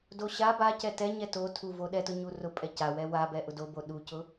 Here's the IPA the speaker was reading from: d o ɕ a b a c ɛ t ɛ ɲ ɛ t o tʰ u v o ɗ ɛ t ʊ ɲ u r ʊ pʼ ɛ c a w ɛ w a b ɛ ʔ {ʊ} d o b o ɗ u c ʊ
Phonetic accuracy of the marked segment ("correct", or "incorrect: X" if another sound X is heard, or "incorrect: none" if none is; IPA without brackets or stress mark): correct